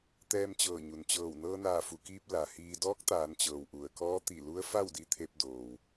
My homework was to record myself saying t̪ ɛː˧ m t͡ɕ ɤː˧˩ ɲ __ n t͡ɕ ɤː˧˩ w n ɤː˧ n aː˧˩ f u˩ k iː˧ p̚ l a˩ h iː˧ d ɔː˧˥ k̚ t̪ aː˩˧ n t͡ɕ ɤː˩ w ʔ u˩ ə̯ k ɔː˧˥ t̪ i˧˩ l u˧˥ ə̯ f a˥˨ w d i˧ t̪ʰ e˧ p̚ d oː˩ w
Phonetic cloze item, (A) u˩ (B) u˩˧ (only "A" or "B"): A